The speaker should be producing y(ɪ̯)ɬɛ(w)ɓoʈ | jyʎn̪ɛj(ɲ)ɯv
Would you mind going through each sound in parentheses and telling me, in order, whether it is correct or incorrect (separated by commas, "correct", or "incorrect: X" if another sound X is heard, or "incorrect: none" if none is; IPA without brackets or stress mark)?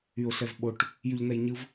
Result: incorrect: ʊ̯, incorrect: v, correct